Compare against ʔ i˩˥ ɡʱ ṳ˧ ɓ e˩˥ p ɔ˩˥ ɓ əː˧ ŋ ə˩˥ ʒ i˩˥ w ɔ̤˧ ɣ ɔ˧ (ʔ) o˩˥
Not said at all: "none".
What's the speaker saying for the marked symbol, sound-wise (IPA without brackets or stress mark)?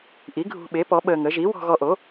ʔ